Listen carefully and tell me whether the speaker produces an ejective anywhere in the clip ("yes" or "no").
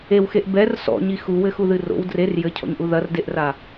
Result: no